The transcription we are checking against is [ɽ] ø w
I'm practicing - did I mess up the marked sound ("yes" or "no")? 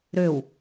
yes